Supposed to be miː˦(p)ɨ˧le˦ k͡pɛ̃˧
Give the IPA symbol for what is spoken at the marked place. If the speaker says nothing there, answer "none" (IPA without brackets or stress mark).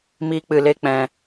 k͡p